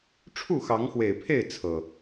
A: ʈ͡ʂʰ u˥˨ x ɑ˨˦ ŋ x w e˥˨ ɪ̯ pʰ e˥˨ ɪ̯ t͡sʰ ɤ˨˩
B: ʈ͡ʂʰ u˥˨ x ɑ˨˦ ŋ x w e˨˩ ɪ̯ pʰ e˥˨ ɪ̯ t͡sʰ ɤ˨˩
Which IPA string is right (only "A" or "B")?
B